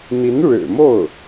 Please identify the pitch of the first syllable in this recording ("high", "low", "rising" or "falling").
rising